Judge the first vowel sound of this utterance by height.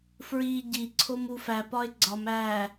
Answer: high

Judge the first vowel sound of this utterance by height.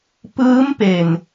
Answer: high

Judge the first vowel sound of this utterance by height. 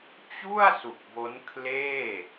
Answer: high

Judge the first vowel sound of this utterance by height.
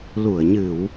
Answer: high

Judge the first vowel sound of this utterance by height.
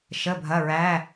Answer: mid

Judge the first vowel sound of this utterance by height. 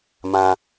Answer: low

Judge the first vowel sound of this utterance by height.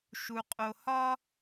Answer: high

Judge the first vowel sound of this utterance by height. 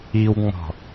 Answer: high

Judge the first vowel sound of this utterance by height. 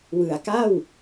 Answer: high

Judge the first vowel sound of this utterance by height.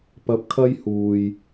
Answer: low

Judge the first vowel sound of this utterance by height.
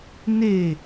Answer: mid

